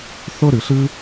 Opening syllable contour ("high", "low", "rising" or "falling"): high